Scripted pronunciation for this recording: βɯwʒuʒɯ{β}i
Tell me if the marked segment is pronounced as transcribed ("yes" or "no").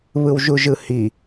no